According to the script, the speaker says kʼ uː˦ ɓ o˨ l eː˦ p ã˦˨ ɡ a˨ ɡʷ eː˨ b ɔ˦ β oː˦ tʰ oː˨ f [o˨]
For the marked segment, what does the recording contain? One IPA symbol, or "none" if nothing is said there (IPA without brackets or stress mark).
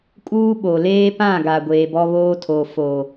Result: oː˨